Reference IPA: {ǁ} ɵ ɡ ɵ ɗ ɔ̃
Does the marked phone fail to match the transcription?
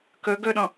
yes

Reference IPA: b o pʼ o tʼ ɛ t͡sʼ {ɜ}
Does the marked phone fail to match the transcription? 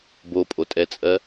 no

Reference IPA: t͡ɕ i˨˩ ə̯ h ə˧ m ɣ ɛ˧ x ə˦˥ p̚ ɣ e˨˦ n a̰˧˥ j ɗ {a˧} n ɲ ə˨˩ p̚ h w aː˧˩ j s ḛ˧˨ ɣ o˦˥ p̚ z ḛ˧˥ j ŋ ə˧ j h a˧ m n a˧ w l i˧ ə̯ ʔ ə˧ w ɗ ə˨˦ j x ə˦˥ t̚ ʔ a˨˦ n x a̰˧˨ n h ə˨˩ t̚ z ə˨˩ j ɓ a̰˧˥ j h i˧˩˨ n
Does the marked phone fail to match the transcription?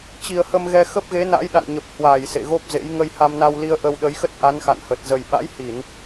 yes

